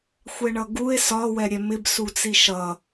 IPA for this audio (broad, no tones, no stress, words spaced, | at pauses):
xʷɛɳʌɡue̯ sɒ wɛɾʲɛmɪb sut͡siʃʌ